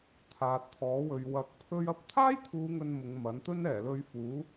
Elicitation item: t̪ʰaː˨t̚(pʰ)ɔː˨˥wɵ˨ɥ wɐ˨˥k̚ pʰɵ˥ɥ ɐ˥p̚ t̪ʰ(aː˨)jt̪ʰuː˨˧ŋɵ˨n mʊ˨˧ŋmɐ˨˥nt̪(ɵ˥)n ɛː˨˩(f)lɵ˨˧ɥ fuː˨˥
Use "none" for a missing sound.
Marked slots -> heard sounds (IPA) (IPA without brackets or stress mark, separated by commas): t̪ʰ, aː˥, ɵ˥, none